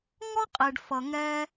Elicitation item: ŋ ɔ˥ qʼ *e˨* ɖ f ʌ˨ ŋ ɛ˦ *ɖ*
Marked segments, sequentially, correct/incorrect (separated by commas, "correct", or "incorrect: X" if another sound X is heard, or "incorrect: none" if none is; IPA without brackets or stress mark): correct, incorrect: none